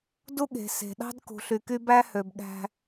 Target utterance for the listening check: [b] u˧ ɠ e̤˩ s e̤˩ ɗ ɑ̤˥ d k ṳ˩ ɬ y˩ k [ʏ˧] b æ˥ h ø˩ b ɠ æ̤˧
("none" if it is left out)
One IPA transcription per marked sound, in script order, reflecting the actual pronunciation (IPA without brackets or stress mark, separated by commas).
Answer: d, y˧